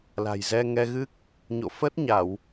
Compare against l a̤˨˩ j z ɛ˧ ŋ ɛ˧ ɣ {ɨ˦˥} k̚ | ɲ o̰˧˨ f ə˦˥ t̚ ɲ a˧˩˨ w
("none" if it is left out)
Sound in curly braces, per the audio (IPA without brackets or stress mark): ɨ˦˥